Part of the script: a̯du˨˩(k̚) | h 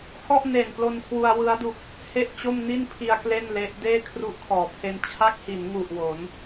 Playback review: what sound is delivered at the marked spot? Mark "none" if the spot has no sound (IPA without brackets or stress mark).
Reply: k̚